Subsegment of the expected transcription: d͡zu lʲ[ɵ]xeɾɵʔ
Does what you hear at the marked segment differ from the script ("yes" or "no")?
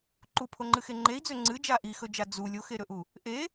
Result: yes